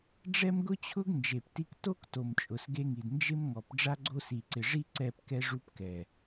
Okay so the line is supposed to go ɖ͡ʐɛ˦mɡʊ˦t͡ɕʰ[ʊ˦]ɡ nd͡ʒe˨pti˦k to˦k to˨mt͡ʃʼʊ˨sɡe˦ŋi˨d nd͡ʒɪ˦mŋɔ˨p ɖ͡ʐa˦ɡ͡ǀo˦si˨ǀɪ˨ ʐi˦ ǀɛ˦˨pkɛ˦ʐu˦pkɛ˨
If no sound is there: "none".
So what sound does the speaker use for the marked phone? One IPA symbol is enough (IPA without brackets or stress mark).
ʊ˦